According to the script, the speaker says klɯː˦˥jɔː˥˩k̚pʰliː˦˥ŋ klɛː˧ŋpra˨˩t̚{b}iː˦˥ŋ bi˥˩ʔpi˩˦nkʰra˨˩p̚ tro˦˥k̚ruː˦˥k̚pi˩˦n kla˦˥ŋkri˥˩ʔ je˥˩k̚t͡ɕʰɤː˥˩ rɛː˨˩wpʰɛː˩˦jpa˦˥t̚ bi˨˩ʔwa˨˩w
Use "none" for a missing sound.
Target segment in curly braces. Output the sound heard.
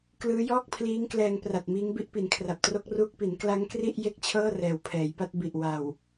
m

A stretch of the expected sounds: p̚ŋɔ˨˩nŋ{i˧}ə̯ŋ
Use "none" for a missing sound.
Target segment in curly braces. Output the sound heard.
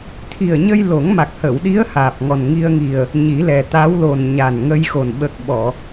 i˧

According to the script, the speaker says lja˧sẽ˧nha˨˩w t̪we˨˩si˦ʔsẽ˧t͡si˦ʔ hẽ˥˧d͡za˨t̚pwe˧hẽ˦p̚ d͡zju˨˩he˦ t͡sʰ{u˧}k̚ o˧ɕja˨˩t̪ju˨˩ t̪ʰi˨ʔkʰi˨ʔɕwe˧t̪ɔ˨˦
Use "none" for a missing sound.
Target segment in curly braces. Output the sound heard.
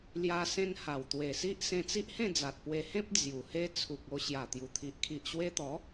u˨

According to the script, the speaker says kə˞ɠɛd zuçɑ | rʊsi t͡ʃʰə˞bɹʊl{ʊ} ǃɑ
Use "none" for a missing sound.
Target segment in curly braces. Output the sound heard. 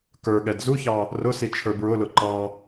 ʊ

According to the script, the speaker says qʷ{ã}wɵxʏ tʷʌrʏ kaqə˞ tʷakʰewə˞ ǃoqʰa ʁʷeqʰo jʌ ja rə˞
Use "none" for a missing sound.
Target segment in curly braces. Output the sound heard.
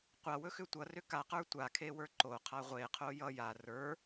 a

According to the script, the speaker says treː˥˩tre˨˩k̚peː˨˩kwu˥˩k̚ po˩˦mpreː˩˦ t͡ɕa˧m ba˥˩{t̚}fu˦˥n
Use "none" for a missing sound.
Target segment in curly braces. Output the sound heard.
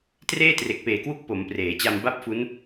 p̚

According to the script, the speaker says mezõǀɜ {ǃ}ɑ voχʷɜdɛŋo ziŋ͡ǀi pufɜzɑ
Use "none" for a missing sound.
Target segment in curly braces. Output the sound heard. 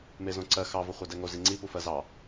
x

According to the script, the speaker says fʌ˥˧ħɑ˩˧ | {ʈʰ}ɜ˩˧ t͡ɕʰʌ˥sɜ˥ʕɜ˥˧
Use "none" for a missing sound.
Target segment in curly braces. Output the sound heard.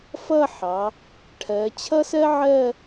ʈʰ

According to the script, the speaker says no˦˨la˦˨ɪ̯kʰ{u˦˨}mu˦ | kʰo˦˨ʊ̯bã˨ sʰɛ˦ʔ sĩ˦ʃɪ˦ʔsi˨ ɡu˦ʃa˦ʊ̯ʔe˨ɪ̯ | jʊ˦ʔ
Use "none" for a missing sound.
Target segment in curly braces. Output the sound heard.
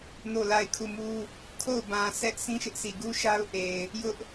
u˦˨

